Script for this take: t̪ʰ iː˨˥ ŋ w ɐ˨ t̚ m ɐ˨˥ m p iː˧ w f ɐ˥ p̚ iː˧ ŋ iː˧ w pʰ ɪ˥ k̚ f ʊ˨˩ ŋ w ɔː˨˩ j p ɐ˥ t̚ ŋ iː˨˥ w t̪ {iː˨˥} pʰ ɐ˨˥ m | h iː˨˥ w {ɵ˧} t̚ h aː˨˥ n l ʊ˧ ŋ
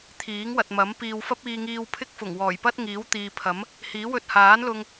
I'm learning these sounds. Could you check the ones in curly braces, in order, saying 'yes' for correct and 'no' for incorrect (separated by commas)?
no, yes